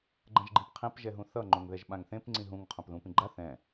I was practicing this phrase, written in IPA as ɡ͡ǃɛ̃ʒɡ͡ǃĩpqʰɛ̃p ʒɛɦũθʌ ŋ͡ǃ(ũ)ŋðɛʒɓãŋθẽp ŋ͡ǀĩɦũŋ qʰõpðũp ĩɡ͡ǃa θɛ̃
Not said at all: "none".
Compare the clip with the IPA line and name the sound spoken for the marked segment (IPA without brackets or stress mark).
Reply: õ